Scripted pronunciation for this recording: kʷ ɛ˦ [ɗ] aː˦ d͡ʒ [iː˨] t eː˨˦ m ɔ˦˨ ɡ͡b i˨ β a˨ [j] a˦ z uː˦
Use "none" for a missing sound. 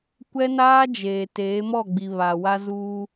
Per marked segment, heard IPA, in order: n, eː˨, w

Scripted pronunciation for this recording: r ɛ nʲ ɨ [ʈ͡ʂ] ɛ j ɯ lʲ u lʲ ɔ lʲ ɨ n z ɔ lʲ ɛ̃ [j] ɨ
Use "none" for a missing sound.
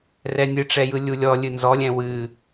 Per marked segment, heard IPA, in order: ʈ͡ʂ, w

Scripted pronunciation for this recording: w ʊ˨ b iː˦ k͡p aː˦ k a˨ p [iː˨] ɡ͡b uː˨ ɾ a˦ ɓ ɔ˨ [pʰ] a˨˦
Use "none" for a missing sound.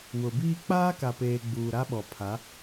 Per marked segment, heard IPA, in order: eː˨, pʰ

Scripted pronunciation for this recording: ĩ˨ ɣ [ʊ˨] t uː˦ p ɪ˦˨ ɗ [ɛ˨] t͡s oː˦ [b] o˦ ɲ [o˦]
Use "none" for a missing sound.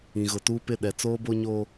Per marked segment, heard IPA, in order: ʊ˨, ɛ˨, b, o˦

